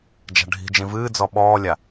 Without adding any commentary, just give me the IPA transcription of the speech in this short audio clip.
d͡ʒ a̤ ɖʱ i̤ d͡ʒ ĩ v ɨː d͡z ɔ ɓ ɔː lʲ a

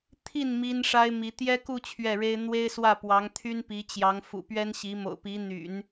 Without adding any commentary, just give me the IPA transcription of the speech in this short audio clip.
t̪ʰ i˥˩ n m i˥ n ʂ a˥ ɪ̯ m i˧˥ t̪ j ɛ˥ k u˥˧ t͡ɕʰ ɥ ɛ˥˩ ɻ e˥ ɪ̯ n̪ w e˥ ɪ̯ s w ä˥˩ p w ɑ˧˥ ŋ t̪ʰ y˥ n p i˧˥ t͡ɕ j ɑ˧˥ ŋ f ṵ˨˩ p ɥ ɛ˥ n ɕ i˧˥ m o̰˨˩ ʊ̯ p i˧˥ n̪ y̰˨˩˦ n

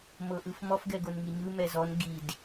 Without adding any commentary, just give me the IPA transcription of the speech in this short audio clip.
m ɤ ʔ ɯ f m ɔ f ɡ ɛ ɡ o n ŋ i ɲ ɯ m ɛ z ɔ n ɡ i d

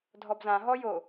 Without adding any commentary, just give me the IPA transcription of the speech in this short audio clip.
dʱ ɔ b z ã ɦ ɔ j o

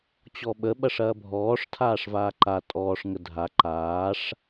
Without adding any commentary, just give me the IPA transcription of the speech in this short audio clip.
t͡ɕ ɔ ɓ ə ɓ ɐ ʂ ɐː bʱ ɔː ʂ tʰ aː ʂ v aː ǃ a tʼ ɔː ʂ ŋ ə dʱ a ǃ aː ʂ

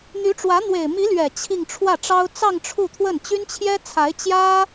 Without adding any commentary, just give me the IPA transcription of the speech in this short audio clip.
n̪ y˧˥ ʈ͡ʂ w ä˧˥ n̪ w e˨˩ ɪ̯ m i˧˥ l ɥ ɛ˨˩ t͡ɕʰ i˥˧ ŋ ʈ͡ʂʰ w ä˥˩ ʈ͡ʂ ɑ˥ ʊ̯ t͡s ɑ˥˧ ŋ ʈ͡ʂʰ u˥˧ t̪ʰ w ə˥˩ n t͡ɕ y˥ n t͡ɕʰ j ɛ˥ t͡sʰ a˧˥ ɪ̯ t͡ɕ j ä˥

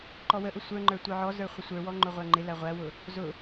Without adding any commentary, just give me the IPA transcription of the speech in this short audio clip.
ǃ ɔ w ə ʔ ʊ sʷ ə˞ ŋ͡ǃ ə˞ tʷ ə˞ ʕ ɔ z ə˞ χʷ ə sʷ ə˞ w ɔ ŋ͡ǃ ʊ ʁʷ æ ŋ͡ǃ ɪ l æ ʁʷ æ w ʊ | z ʊ

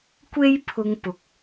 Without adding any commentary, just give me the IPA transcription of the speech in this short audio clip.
kʷ e˥ j pʰ ʊ˧ ŋ p ʊ˨ k̚

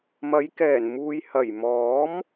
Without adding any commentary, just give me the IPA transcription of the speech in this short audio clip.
m ɐ˨˧ j k ɛː˨˩ n m uː˨ j h ɐ˨˩ j m ɔː˨˥ m

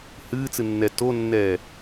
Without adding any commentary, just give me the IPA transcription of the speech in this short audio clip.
h ɨː t͡s ɨ nː ɛ t o nː ɛː

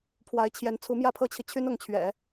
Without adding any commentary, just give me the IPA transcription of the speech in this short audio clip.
pʰ w a˧˥ ɪ̯ t͡ɕʰ j ɛ˧˥ n t͡sʰ u˧˥ m j ä˥˩ pʰ ɤ˥ t͡ɕʰ i˨ t͡ɕʰ y˥ n ʊ˧˥ ŋ t͡ɕʰ ɥ ɛ̰˨˩˦

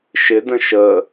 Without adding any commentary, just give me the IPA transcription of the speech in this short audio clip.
ʃ ɪ d ə̃ ʃ ə

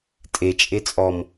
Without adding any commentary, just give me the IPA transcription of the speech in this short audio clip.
tʼ e t͡ʃʼ e t͡sʼ ɔ m

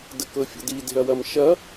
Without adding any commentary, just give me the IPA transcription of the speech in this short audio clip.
d ə k ɤ fʲ ə̰ d i d e̤ ɐ̯ w ɐ m ʃ ɐ

